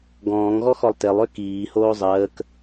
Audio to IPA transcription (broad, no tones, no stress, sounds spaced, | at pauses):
ɡ ɔ̃ː ŋ ɣ ɔ x ɔ lˠ t e lˠ ø k iː h oː zˤ əː k